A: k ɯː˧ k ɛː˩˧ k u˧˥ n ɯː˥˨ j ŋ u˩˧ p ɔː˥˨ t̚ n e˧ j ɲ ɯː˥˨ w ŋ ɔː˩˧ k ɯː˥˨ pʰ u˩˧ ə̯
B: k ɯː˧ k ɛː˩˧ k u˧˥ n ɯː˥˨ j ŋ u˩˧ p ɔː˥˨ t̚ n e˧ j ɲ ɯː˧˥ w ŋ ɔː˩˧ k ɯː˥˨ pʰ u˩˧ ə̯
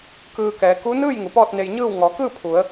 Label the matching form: A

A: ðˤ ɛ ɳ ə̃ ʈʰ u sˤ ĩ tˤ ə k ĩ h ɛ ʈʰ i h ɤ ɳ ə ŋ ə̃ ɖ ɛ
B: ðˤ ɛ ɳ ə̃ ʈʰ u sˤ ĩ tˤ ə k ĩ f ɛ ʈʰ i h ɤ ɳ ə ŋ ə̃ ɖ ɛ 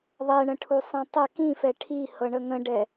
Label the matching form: B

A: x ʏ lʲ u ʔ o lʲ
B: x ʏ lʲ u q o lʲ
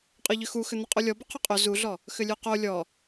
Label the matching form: B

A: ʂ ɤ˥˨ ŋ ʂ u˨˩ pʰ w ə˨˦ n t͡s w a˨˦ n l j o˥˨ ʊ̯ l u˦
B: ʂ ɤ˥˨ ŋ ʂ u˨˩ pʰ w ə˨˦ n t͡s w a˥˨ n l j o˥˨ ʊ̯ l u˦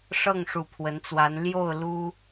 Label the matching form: A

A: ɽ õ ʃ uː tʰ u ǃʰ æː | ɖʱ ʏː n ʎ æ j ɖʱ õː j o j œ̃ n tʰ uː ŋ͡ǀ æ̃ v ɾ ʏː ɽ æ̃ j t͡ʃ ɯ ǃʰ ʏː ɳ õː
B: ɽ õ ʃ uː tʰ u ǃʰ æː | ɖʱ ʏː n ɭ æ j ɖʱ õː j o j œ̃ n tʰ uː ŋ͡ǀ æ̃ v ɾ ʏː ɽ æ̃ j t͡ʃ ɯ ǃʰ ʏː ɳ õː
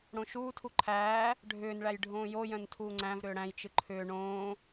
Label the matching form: B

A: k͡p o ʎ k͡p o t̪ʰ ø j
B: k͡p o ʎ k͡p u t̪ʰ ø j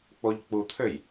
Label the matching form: B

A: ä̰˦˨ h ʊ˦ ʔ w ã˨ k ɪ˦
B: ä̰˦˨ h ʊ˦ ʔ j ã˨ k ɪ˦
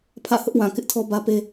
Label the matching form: A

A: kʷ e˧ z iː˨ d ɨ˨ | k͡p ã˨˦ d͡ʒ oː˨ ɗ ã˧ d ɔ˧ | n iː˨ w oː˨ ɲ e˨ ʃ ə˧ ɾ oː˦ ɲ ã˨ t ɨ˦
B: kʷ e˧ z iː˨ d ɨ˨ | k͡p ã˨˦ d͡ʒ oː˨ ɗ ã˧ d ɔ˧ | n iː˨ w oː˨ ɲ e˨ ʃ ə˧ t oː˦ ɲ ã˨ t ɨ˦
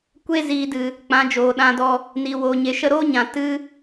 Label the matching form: A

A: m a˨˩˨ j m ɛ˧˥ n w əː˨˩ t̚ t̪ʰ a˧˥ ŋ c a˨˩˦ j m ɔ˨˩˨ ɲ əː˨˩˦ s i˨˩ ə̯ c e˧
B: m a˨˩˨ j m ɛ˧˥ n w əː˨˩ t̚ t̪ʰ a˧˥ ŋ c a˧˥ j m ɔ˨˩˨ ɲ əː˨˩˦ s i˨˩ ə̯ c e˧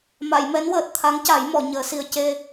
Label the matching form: A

